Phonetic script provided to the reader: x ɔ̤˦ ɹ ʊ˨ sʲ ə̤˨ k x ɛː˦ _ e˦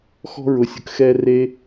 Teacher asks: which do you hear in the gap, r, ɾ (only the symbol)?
r